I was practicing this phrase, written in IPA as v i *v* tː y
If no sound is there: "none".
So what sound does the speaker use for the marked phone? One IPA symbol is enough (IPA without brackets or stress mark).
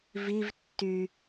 v